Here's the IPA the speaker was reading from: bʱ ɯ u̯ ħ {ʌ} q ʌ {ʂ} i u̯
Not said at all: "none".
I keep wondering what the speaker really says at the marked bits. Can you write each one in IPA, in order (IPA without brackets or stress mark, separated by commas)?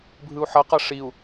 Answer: ʌ, ʂ